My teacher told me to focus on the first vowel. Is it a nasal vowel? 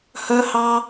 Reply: no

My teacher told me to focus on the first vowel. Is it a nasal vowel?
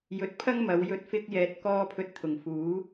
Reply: no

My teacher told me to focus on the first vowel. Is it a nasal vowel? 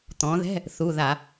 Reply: yes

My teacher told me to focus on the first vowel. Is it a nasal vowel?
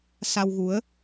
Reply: no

